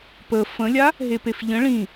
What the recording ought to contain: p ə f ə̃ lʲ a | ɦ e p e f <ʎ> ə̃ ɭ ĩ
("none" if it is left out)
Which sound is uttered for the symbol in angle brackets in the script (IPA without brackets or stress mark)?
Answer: ʎ